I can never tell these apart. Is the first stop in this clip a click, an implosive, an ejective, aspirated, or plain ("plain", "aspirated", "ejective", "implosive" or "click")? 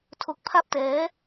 aspirated